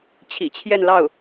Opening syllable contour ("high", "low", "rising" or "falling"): low